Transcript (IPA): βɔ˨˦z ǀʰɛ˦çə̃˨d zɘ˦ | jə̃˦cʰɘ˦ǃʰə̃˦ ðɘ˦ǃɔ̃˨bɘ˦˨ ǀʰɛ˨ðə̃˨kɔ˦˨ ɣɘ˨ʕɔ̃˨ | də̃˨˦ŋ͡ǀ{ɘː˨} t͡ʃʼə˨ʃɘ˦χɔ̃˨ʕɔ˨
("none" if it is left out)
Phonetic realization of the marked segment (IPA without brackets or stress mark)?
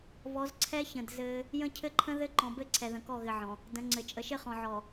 ɘ˨